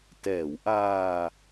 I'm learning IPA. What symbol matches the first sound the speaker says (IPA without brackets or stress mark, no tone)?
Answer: t